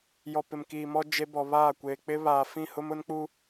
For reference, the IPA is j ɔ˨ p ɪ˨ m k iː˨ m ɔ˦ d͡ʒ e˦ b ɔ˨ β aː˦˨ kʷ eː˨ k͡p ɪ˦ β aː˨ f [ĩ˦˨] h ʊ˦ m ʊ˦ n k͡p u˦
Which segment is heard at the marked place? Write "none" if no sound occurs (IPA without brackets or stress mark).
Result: ĩ˦˨